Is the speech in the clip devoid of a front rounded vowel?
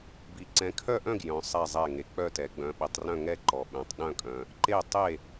no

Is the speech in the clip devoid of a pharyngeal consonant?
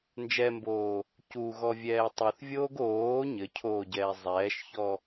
yes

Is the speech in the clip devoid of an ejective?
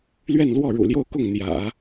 yes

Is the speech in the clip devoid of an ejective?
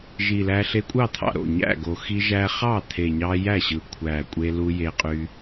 no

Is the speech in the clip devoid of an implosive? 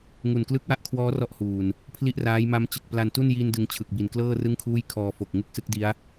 yes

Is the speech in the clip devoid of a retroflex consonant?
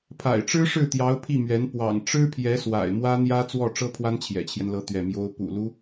no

